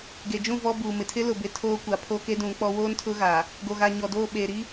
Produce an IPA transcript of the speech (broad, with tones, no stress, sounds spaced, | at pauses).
ɡ e˨ d͡ʒ ũ˦˨ v ɔ˦ b uː˨ m ɪ˨ tʰ ɪ˦ l ʊ˨ b ɪ˨ tʰ oː˦ kʷ a˨ pʰ o˦ k e˦ d ũ˨˦ k͡p ɔ˦ w oː˦ n tʰ ʊ˦ ɣ aː˨ | ɡ o˨ ɣ a˨ ɲ ɔ˨ d oː˦˨ ɓ eː˨ ɾ i˦